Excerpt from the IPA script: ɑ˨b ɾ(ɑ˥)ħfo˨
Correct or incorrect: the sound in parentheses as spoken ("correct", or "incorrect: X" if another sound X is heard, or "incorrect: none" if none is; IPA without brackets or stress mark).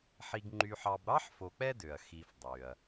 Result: correct